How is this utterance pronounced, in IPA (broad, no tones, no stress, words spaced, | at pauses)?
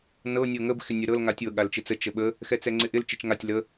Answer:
nɤ nʲɤŋəb xɪnʲəɾɤl ŋatʲɤ ɠalt͡ʃɪt͡sə t͡ʃəɓə | xɛt͡sɛŋ͡ǀɪʔɪl t͡ʃɪt͡ʃŋatʲ lə